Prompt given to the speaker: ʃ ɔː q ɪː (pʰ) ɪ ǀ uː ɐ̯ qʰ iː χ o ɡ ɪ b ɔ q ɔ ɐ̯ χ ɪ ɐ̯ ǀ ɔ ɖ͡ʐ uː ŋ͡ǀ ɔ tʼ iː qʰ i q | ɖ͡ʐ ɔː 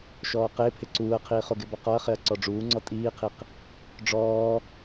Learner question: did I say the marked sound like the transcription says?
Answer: yes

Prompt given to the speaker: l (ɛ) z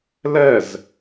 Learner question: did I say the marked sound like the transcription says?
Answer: yes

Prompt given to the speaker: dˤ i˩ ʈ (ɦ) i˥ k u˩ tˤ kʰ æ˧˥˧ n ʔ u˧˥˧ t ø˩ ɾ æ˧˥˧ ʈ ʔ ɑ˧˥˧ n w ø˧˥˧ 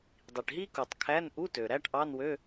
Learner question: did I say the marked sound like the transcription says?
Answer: yes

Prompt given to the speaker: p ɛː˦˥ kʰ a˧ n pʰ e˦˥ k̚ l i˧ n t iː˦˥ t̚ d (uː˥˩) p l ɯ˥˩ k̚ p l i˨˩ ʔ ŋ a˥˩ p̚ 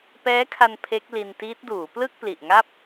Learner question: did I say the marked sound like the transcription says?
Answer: no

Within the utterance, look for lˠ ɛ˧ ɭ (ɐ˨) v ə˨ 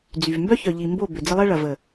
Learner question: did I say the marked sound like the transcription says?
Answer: yes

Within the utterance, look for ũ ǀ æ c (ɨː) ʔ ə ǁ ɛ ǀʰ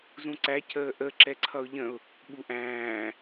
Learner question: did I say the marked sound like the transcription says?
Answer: no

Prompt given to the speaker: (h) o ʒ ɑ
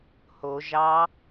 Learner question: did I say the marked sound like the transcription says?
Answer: yes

